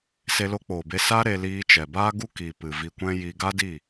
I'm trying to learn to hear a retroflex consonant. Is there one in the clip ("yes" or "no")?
no